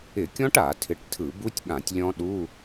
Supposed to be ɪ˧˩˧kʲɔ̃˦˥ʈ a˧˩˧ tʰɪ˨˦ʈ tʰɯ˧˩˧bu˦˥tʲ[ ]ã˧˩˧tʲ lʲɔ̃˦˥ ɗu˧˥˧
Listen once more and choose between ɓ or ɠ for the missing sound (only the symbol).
ɠ